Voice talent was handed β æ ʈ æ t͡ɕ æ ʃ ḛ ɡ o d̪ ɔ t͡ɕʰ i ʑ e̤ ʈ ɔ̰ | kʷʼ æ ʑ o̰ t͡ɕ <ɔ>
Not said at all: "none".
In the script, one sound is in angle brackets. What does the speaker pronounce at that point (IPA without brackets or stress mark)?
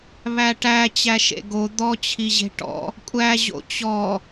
ɔ